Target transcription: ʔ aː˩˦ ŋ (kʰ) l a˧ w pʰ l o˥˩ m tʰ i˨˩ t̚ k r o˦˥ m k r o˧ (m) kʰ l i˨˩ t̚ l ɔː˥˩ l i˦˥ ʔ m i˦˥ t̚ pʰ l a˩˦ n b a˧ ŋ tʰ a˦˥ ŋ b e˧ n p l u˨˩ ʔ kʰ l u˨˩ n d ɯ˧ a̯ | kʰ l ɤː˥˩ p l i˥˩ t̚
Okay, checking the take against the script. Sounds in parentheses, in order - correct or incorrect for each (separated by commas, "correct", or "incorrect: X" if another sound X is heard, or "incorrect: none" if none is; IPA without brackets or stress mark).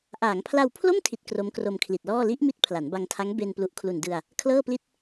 incorrect: pʰ, correct